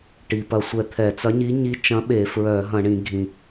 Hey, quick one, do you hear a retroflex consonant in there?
yes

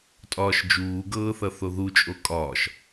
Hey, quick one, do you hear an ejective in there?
yes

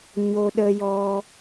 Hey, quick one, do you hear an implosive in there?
yes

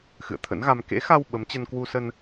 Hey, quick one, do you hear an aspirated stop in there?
yes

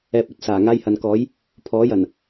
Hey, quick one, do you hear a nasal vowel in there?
no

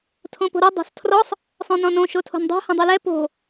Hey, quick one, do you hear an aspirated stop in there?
yes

